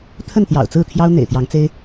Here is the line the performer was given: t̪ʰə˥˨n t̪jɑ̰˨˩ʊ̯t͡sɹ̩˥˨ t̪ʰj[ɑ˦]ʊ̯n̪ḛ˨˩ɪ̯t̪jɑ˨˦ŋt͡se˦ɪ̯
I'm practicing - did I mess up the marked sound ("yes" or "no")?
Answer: no